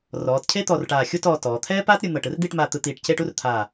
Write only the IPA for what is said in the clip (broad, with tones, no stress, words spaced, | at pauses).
rɔː˩˧tcʰe˥t̪ɔ˧˩rʈaː˧˩ xʲu˥˧t ɔː˧tɔː˩˧ t̪ʰɛː˥paː˥t ɾʲɯ˧n̪ɤ˧˩ʈɯ˥r d̪i˥˧ʈmaː˧t̪ɯ˧t̪iː˧˩ʈ ce˥˧ʈu˥rt̪ʰaː˧˩